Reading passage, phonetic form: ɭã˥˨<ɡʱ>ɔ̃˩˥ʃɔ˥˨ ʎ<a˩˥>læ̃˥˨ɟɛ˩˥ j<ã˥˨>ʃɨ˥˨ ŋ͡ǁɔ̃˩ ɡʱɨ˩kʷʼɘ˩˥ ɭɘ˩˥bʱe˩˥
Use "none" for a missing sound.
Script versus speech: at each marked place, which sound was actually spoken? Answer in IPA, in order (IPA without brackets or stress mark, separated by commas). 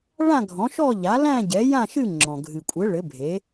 ɡʱ, a˩˥, ã˥˨